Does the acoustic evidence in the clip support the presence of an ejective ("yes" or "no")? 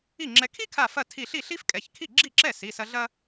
yes